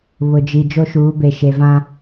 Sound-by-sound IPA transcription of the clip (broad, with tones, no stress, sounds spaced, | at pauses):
β ʊ˨ d͡ʒ i˨ d͡ʒ o˦ ʃ uː˨˦ b e˨ ʃ e˨ v ã˦